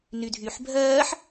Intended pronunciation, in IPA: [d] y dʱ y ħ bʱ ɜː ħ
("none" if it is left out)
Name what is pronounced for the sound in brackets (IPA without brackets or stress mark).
n